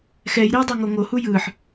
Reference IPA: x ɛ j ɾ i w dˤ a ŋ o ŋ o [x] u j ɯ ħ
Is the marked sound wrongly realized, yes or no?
yes